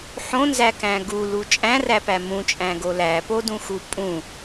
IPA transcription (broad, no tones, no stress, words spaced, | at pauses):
ħõnzækæ̃ ɡulu t͡ʃʼæ̃ræpæ mũt͡ʃʼæ̃ɡo læpodũxu pʼũ